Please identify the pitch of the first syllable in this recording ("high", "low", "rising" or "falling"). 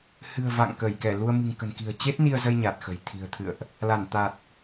low